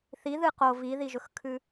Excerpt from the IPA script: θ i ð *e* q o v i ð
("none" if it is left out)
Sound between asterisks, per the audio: ɨ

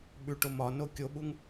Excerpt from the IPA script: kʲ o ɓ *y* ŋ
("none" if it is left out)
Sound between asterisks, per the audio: u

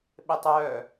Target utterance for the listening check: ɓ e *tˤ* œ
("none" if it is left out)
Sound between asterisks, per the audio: tˤ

